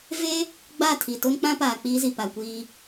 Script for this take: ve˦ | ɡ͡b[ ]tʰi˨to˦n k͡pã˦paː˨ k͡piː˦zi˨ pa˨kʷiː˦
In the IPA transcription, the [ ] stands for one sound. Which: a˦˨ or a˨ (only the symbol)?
a˦˨